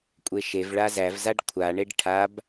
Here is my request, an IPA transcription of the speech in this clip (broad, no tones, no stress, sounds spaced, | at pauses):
kʷʼ e ʃ e v ɭ a z æ v z a ɖ kʷʰ a ɳ e ɖ ʈʰ a b